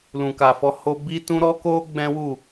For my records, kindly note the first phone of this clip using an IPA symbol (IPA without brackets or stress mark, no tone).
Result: l